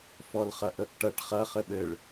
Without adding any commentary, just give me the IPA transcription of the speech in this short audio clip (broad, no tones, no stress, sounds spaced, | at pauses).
f ɔ l χ ɐ ʔ ə ʔ ʈ ɐ ʈ χ ɐ χ ɘ ɓ ɘ ɭ